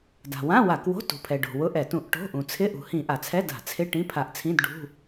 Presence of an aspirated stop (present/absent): present